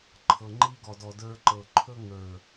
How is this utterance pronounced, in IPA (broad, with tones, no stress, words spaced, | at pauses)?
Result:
ǃʰɤ˨ŋ͡ǃi˧ɡɔ˨dɔ˨ də˞˧ǃɤ˨ǃʰɵ˦ ŋə˞˨